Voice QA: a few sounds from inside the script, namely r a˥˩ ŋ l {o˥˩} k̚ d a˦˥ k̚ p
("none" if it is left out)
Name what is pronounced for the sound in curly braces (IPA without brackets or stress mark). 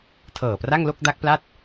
o˥˩